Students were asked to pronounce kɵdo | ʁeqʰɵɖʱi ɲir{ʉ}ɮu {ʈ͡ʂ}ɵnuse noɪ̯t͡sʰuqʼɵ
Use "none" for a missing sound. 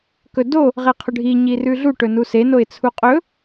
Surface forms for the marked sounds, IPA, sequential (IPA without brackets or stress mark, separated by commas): ʉ, ʈ